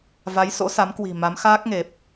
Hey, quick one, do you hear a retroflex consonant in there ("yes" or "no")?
no